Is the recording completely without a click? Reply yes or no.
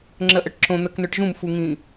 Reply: no